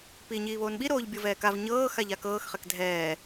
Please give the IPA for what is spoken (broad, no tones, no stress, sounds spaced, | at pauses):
p iː ɲ iː β oː n ɓ i ɾ oː ʎ bʲ ɤ v ɛː k a v ɲ ɤː x a ʎ a k ɤː x χ ɛ k dʱ ɛː